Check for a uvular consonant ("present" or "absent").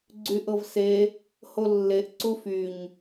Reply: absent